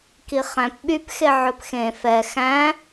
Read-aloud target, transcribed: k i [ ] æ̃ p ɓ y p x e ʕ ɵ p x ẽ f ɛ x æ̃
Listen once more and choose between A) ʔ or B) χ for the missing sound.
B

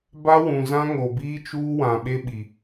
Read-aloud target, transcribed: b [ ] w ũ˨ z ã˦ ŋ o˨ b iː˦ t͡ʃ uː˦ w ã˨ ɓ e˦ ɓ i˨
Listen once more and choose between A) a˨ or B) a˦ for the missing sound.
B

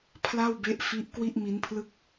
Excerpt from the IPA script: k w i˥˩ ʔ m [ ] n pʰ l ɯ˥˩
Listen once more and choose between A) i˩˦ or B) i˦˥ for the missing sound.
B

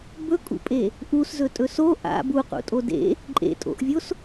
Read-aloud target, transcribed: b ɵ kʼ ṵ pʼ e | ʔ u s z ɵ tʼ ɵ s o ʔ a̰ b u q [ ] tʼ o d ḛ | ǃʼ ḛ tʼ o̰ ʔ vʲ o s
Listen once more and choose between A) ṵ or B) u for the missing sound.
A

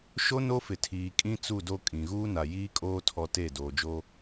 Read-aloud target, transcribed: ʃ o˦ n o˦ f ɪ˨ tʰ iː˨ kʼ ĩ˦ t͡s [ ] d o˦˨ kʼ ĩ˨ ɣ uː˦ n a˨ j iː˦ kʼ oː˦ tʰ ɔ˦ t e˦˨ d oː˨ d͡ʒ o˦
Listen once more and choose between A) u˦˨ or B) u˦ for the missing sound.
A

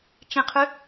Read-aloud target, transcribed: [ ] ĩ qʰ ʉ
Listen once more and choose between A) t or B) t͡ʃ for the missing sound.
B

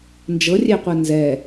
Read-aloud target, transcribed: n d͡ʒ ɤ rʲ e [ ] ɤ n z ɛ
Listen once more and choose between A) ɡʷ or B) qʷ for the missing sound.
B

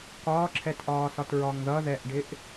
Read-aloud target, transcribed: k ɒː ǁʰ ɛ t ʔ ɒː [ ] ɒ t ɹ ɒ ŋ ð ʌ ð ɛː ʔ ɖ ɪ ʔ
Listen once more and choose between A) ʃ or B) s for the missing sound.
B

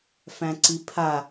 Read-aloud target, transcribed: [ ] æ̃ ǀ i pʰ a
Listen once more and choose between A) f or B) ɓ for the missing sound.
A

